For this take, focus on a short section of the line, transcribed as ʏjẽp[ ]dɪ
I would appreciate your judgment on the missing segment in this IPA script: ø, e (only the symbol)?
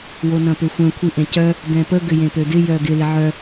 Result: ø